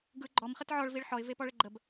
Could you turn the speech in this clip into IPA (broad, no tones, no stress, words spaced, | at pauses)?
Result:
ɡɯ ɡ͡ǃɔmχət ʕɔɭviɭ ħɔɪ̯vepɔɭə ɡ͡ǃəb